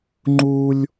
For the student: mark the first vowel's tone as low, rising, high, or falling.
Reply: high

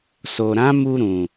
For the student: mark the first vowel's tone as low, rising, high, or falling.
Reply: low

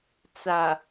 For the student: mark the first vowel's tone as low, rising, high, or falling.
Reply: low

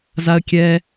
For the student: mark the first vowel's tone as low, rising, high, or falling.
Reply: high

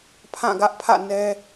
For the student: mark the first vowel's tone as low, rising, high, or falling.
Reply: falling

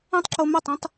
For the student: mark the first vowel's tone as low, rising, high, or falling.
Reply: high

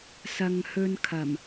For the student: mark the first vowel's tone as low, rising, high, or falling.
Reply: low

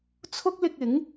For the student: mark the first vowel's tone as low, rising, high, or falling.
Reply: high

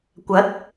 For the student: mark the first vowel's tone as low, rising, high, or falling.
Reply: rising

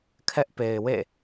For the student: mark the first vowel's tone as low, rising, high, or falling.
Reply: high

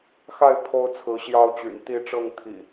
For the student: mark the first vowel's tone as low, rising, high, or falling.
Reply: falling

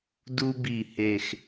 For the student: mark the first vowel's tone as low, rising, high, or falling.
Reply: high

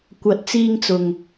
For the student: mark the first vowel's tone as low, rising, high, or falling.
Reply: rising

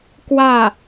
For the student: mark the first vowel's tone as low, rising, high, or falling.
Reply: falling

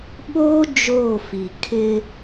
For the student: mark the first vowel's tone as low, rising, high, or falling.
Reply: high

